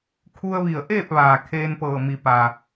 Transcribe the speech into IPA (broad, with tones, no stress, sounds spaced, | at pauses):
kʰ u˧ ə̯ ʋ i˧˩ ə̯ ʔ eː˥˨ p̚ ʋ aː˩ kʰ eː˧ n p ɤː˧˩ m i˩ p a˩